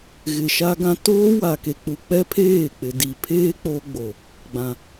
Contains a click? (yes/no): no